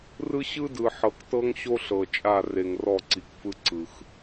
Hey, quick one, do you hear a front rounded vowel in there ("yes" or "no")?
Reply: no